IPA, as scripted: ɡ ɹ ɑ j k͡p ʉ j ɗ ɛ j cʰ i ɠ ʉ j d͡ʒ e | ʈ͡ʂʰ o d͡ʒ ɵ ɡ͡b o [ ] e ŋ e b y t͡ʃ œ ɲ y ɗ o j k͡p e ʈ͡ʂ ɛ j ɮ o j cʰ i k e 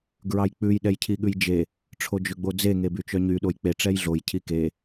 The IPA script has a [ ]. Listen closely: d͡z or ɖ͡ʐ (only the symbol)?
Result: d͡z